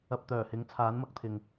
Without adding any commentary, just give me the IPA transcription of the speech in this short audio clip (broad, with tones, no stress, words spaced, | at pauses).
ɐ˨p̚t̪œː˨˩ hɪ˨˥ŋt͡sʰaː˨˥nmɐ˧k̚t̪ʰɪ˨ŋ